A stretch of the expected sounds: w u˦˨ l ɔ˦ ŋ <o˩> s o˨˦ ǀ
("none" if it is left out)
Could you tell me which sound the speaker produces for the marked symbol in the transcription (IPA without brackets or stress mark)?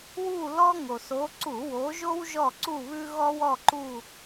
o˩